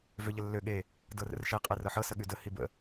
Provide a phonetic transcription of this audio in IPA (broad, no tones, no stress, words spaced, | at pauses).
vøʎəlːø ɠe | dɤrə̰rʃe qʼerɤħɤ səɠʉdə hibə̰